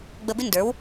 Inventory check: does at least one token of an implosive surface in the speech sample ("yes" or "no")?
no